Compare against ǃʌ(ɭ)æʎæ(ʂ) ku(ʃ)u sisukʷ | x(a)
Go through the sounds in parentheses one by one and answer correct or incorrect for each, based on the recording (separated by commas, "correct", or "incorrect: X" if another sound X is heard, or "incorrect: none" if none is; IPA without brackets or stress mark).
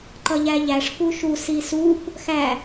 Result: incorrect: ʎ, correct, correct, incorrect: æ